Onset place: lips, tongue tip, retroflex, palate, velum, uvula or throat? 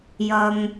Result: palate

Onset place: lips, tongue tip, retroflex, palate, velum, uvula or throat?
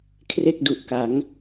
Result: velum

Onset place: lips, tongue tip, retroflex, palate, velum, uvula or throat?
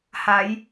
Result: throat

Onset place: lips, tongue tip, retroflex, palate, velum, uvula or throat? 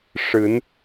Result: retroflex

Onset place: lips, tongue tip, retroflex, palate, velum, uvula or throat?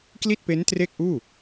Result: velum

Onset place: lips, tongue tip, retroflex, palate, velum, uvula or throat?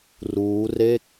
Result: tongue tip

